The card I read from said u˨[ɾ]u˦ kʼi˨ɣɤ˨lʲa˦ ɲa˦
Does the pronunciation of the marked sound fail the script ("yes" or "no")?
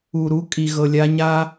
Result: no